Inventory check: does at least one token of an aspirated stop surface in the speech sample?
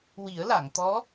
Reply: no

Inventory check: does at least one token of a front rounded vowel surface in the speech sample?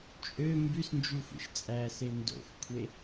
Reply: yes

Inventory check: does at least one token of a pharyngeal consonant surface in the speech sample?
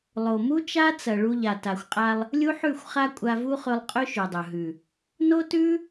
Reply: yes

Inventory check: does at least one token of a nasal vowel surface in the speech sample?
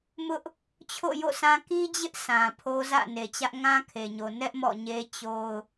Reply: yes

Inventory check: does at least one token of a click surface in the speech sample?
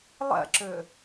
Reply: yes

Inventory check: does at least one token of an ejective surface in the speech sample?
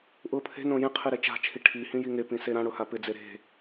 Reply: no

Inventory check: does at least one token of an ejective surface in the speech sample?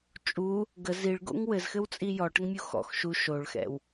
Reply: yes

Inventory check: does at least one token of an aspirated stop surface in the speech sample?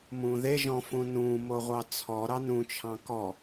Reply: yes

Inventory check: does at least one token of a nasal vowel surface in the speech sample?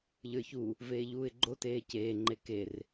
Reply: no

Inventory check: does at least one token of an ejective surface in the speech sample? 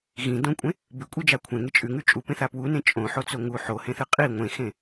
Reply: yes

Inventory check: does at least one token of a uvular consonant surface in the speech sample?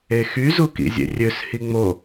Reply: no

